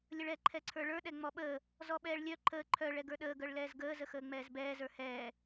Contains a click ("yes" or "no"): yes